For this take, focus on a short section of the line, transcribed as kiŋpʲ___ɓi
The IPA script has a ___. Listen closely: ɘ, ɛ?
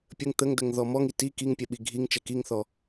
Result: ɛ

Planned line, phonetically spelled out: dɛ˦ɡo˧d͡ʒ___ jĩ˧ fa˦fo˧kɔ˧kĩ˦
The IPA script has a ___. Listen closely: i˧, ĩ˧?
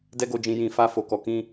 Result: ĩ˧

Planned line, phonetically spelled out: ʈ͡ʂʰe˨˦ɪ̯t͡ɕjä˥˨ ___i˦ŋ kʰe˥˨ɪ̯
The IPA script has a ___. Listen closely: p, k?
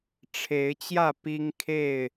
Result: p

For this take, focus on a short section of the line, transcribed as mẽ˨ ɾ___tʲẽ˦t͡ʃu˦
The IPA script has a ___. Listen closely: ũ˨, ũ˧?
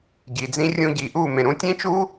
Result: ũ˧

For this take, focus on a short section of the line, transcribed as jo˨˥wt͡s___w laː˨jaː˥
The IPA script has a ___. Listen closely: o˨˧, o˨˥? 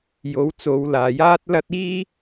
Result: o˨˧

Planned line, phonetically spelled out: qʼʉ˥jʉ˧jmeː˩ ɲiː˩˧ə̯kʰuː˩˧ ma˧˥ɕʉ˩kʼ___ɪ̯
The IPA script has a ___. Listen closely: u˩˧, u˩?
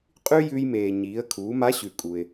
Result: u˩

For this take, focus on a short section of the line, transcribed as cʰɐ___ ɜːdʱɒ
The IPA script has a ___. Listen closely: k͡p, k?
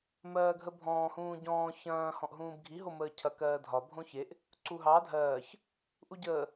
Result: k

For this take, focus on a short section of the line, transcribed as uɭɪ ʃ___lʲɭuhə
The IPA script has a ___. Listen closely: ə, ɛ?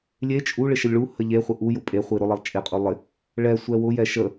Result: ə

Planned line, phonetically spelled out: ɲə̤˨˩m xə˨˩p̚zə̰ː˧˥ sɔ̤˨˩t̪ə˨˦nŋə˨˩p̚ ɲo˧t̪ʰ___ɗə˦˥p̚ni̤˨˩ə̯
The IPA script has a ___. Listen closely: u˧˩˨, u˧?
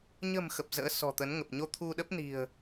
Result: u˧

